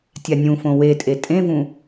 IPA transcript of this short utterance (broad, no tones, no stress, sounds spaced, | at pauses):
tʲ a nʲ ũ f õ w e tʼ e tʼ ẽ v ũ